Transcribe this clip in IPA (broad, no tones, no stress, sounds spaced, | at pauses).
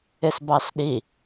ɪ s b ɑ s ɗ i